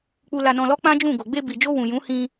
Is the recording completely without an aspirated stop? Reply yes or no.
yes